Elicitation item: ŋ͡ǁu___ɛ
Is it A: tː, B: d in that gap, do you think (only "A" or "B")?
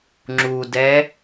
B